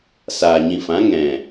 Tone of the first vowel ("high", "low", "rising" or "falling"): low